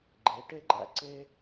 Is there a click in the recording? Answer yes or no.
yes